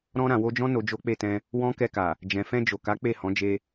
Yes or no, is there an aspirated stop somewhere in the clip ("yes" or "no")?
no